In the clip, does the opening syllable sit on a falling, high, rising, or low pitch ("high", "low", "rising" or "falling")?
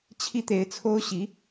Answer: high